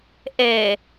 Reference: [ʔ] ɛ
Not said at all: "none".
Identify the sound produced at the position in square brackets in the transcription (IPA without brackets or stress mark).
ʔ